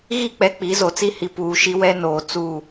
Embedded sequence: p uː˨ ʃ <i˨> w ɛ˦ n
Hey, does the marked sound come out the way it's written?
no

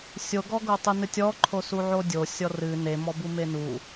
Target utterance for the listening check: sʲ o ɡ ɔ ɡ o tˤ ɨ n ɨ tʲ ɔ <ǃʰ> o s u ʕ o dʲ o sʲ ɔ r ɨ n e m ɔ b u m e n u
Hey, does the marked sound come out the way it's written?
yes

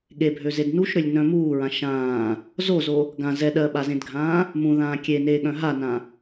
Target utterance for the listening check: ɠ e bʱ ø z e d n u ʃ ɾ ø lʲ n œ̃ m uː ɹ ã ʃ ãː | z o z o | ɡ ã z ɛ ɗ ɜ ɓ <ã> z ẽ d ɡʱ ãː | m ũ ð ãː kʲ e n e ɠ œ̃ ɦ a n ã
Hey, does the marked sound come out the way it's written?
no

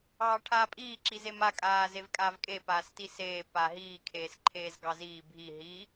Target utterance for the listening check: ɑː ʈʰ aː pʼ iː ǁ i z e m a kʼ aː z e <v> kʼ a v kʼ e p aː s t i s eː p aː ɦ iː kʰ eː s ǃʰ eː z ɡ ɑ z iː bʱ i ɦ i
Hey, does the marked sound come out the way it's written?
yes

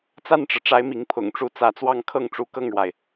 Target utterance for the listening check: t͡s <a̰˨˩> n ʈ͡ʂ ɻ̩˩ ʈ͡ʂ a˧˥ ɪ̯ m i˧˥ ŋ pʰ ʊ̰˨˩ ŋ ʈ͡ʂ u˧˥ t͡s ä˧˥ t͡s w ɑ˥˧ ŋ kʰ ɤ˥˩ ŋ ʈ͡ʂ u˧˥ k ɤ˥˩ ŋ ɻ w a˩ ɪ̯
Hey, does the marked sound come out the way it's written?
no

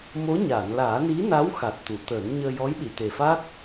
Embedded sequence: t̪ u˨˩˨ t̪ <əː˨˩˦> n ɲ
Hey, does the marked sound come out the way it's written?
yes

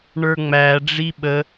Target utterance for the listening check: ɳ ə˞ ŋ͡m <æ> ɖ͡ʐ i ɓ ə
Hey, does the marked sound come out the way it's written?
yes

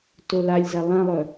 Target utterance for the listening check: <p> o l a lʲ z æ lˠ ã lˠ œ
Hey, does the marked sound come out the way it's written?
no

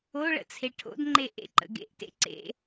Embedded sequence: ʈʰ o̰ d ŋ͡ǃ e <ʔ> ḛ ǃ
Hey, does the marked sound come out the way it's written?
yes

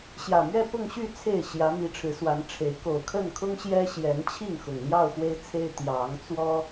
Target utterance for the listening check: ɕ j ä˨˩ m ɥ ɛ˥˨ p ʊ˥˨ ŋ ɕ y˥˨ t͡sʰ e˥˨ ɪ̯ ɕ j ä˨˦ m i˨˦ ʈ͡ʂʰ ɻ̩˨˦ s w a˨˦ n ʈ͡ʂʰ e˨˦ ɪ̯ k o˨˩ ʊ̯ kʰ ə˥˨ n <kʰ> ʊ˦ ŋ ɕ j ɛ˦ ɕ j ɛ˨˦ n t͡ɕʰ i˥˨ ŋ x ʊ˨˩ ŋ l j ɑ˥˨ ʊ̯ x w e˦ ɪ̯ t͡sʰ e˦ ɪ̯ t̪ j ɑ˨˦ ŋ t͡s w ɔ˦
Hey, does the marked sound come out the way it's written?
yes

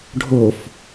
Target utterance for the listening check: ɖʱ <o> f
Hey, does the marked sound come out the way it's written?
yes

